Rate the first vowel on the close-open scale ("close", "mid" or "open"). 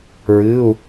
close